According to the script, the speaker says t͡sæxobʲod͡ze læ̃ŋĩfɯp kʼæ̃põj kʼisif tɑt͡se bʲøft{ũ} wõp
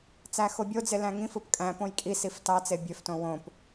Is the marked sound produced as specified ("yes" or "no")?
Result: no